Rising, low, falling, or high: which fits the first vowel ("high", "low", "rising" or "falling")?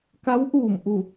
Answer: rising